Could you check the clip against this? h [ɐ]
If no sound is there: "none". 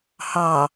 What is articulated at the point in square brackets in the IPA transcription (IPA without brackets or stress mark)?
ɑ